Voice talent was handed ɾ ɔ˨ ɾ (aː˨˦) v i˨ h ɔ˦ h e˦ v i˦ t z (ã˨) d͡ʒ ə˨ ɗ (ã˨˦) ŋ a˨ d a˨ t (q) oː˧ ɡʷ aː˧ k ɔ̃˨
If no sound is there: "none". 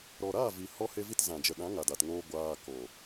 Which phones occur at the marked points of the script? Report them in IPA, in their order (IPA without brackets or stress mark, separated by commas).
aː˦˨, ã˨, ã˨˦, ŋ